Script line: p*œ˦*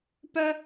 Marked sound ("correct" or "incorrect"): correct